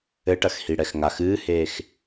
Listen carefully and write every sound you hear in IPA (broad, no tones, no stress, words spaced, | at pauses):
ɘʈɐx hiɽɛxŋax ɨːheːx